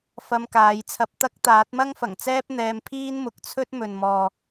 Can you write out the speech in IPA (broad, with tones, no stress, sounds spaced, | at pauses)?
f ɐ˧ m k aː˨˧ j t͡sʰ ɐ˧ p̚ t̪ ɐ˥ k̚ t̪ aː˨˥ t̚ m ɐ˥ ŋ f ɐ˨˩ ŋ t͡s ɛː˥ p̚ n̪ ɛː˧ m pʰ iː˥ n m ʊ˨ k̚ t͡sʰ ɵ˥ t̚ m ɵ˨ n m ɔː˨